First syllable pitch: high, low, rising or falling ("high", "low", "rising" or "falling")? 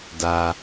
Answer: low